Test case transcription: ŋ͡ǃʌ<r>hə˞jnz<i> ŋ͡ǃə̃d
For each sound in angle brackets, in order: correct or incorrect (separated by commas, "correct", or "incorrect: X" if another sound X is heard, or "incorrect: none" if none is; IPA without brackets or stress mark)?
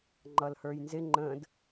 incorrect: l, incorrect: ɪ